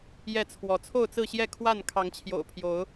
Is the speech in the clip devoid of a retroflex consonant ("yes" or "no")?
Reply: yes